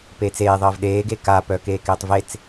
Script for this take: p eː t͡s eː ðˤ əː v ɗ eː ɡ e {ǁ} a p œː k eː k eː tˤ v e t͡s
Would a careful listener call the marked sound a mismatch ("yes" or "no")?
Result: yes